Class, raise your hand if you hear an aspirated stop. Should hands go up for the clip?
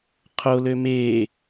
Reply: yes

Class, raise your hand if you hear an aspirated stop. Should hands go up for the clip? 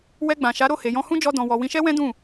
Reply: no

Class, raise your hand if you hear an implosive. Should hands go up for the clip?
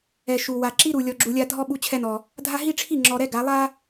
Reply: yes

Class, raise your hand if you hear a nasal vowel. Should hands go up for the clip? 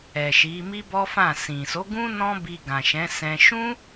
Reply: yes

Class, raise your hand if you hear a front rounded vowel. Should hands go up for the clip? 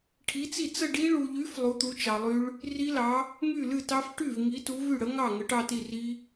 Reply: yes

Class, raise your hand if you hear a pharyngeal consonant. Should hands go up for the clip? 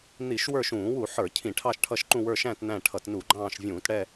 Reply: yes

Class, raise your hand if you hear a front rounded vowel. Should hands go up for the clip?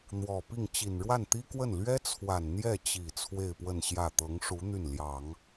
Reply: yes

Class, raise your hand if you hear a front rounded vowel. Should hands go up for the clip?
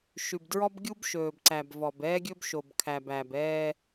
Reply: no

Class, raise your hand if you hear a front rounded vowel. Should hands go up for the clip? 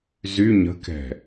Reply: yes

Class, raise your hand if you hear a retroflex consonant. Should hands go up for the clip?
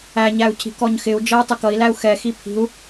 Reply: no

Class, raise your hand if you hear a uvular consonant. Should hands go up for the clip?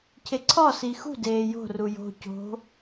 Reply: no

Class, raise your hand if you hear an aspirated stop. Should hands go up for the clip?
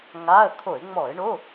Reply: yes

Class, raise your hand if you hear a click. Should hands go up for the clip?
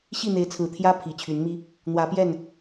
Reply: no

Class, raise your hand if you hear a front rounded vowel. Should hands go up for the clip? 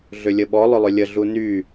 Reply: yes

